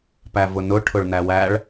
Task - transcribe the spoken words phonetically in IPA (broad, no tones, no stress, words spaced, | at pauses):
pævʊnʊ ʈʰʊɭnæwæɭ